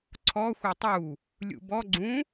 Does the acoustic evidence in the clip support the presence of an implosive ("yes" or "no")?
no